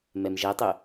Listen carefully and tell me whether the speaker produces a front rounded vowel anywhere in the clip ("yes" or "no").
yes